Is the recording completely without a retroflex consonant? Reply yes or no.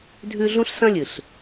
yes